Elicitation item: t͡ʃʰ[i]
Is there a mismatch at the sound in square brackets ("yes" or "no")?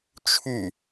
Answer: yes